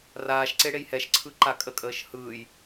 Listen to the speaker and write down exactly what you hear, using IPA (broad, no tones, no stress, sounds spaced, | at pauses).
r aː ʃ ǀ e ɽ e j h ɛ ʃ ǀʰ ɯ ǃ a kʼ ə kʼ əː ʃ h ɯː j